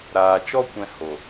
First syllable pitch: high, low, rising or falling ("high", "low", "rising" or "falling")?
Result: low